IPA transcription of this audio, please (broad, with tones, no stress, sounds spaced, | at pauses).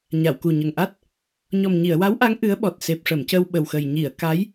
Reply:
ɲ a˨˩˨ w k u˨˩ ɲ ə˨˩ ŋ ʔ a˦˥ t̚ | ɲ ɔ˨˩ m ɲ i˨˩˨ ə̯ w a˧˥ w ʔ a˧˥ ŋ ʔ ɨ˧˥ ə̯ ɓ ɔ˨˩ t̚ s e˨˩ p̚ ʂ ə˨˩˨ m c ə˧ w ɓ ə˨˩ w x ə˨˩ j ɲ i˨˩˨ ə̯ k a˧˥ j